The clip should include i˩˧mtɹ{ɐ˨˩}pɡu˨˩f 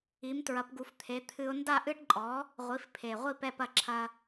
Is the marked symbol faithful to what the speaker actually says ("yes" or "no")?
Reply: no